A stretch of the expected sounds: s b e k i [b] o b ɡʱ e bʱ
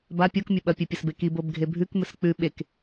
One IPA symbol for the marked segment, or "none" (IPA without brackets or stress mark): b